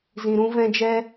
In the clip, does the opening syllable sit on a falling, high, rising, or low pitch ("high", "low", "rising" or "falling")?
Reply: low